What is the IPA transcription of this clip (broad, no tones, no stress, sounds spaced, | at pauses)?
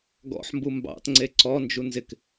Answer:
ɡ ɔ̰ ħ m b u m b ɑ̰ t ŋ͡ǀ e ǀ ɔ n d͡ʒ u n z ɪ k